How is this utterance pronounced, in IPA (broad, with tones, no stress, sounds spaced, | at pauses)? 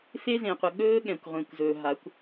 f e˦ z ẽ˨ qʷ ə˨ ɠ ɵː˦ ɠ ɛ̃˨ kʷ ʁʷ ẽ˨ kʷ z ɵː˨ ɦ a˨˦ kʷ